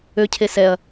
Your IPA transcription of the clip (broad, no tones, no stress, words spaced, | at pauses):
ø cʰesɛɐ̯